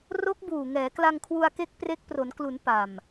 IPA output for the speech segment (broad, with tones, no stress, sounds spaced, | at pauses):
r o˦˥ k̚ b uː˨˩ ŋ ɛː˩˦ k l a˧ ŋ kʰ w u˧ a̯ k e˦˥ k̚ p r e˦˥ k̚ p r o˩˦ n k l u˩˦ n p a˨˩ m